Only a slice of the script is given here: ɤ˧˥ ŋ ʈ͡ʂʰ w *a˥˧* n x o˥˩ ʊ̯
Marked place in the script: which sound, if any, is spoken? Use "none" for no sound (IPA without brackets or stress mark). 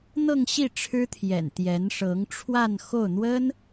a˥˧